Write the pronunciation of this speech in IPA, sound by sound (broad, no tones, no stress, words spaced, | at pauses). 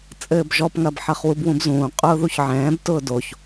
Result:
t͡sʼɘːbʒɔpŋɐb ħɐχwubwũbzũː qʼʊːðuçʕɛ̃ːbtʊː doç